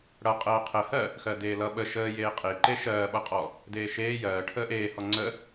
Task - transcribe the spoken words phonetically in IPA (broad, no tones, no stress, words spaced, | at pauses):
ɽʌ qʼɜːqʰəːhɜ | xɜdeːlʌ ɓə ʃəːjeː qʼe ǃeʃɜːɓʌqʼɔ | deːʃeː jɜː ʈʰəːʔeːhɔ ŋ͡ǀə